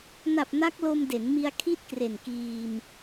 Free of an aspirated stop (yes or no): no